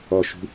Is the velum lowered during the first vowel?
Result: no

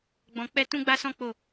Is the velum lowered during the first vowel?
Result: yes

